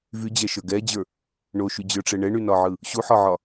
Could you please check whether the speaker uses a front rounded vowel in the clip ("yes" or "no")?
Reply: yes